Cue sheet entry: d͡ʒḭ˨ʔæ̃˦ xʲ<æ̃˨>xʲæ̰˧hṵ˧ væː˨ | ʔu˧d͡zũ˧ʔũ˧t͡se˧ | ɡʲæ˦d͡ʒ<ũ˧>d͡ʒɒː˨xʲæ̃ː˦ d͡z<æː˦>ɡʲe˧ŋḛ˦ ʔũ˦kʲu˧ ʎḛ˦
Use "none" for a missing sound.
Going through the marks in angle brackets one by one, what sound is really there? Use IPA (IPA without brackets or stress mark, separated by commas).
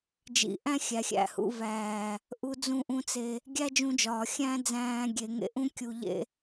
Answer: æ˨, ũ˧, æ̃ː˦